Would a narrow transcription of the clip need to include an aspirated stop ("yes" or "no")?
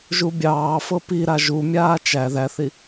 no